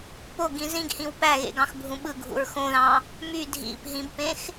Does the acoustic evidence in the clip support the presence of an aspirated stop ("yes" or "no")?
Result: no